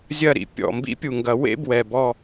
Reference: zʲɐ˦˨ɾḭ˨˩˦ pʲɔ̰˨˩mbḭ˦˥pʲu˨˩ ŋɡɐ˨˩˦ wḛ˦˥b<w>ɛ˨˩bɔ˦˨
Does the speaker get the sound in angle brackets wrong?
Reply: no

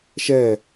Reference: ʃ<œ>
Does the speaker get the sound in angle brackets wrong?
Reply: yes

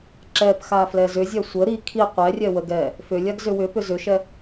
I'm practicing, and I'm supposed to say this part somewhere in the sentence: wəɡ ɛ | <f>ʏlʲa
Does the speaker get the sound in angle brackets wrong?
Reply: no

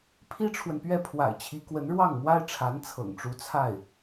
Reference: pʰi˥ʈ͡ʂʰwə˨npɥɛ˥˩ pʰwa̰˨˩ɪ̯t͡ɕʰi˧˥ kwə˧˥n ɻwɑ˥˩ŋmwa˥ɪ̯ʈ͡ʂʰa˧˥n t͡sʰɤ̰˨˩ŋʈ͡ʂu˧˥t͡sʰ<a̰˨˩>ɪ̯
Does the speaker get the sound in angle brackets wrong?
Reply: yes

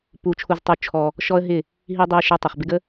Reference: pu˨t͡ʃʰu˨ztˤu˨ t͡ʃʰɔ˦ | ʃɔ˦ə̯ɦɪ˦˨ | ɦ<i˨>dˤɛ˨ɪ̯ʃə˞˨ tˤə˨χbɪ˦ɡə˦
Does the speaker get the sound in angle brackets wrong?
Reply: no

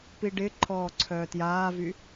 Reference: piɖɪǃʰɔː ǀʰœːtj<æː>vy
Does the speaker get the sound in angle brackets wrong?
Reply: yes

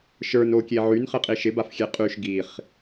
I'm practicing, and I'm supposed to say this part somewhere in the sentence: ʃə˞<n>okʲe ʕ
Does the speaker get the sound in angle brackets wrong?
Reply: no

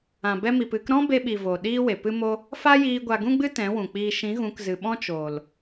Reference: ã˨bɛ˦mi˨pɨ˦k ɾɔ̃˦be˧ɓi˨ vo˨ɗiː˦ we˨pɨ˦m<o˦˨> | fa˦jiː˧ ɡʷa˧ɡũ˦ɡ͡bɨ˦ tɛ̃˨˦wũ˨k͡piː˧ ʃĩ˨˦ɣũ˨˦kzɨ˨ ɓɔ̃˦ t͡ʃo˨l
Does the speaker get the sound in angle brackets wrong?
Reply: yes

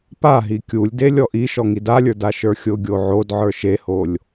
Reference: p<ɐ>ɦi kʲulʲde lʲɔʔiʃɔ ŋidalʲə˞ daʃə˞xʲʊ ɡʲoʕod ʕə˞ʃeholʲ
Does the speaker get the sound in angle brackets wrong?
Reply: yes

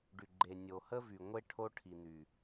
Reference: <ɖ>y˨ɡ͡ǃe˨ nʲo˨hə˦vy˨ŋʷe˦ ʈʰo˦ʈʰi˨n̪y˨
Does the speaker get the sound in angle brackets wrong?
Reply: no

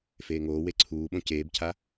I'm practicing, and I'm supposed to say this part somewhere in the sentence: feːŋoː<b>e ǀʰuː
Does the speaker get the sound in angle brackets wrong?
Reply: yes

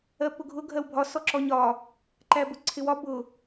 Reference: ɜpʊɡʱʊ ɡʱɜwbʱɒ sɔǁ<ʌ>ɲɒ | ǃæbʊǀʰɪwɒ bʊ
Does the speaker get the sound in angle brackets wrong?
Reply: yes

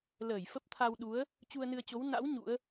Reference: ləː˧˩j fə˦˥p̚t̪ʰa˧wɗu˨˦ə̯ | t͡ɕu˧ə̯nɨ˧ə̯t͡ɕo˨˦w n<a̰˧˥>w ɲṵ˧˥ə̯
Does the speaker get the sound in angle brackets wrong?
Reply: no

